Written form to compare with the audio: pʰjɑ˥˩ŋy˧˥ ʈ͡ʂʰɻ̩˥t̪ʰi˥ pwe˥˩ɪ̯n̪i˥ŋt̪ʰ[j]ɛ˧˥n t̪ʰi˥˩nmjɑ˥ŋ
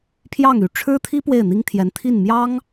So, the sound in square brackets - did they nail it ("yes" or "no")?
yes